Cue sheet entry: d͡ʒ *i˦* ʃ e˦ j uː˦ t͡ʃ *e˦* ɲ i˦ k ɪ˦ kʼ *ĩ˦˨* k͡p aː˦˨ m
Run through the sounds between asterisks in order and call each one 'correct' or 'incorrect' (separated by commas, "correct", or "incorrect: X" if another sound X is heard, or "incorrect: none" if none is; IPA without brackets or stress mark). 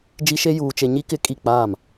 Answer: correct, correct, incorrect: i˦˨